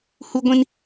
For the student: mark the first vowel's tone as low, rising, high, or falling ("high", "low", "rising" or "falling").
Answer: high